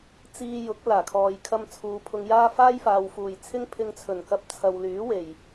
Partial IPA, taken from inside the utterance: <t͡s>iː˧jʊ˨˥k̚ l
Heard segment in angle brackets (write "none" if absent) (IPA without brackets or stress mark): t͡s